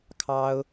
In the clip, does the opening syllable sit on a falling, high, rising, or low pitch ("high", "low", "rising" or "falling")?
high